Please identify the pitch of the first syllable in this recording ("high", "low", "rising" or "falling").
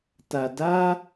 low